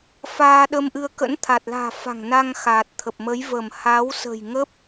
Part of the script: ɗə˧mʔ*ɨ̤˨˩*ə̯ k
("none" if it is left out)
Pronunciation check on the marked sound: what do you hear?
ɨ˧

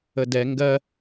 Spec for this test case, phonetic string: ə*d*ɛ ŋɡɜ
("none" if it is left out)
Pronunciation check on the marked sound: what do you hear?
d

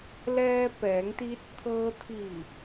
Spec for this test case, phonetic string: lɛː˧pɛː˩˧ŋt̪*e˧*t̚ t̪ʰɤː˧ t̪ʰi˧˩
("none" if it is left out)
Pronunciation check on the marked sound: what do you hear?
i˧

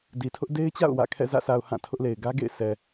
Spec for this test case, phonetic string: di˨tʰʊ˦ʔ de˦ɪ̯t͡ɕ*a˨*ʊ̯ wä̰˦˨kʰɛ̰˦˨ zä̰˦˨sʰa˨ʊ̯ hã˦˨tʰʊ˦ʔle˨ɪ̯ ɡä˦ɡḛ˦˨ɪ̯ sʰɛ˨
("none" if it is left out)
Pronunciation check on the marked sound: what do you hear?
a̰˦˨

